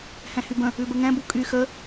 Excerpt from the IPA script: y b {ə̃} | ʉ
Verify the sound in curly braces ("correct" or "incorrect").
correct